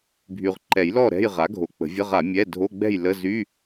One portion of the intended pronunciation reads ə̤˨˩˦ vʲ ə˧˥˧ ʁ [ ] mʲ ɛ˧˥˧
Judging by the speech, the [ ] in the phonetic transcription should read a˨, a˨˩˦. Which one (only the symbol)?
a˨˩˦